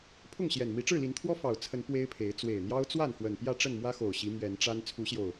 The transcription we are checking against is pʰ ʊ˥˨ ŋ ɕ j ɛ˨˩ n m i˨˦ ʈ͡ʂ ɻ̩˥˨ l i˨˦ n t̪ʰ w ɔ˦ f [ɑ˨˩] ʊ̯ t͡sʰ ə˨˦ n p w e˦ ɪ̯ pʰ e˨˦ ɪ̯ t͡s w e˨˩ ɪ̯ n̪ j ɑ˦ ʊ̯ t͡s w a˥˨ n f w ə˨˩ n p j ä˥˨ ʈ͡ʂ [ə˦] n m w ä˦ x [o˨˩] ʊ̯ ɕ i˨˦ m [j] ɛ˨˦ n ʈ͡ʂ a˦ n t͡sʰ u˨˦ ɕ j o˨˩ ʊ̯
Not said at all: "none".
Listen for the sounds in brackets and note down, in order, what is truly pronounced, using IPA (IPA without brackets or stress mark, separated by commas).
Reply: ɑ˨˩, ə˥˨, o˨˩, ɥ